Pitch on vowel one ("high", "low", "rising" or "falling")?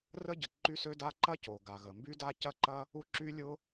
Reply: high